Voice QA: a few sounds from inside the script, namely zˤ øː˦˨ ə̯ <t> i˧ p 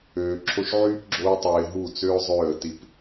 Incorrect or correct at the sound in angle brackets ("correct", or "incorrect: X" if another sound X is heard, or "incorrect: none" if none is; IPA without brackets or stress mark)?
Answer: correct